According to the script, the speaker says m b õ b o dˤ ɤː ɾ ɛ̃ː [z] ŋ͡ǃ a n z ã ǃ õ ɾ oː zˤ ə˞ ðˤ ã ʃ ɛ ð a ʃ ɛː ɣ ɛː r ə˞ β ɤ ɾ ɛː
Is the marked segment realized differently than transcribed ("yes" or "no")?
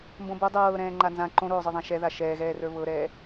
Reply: yes